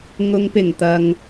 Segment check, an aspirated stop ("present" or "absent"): absent